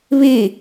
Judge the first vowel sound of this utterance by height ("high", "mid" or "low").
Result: high